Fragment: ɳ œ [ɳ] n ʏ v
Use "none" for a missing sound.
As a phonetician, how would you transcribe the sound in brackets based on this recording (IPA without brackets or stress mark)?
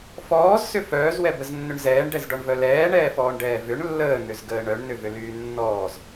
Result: ɳ